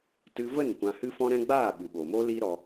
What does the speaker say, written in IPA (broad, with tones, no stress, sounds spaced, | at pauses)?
t ɨ˧ v ə˦˨ n kʷ ã˧ h ɨ˦ f ɔ̃˦ ɾ ɛ̃˦ ɡ͡b aː˦˨ ɓ ɨ˨ ɓ oː˨ m oː˦ l iː˦ ɾ ɔ˧